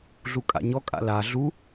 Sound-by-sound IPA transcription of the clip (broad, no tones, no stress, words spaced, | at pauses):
ɮukʼa̰ɲɔ kʼa̰la ɮu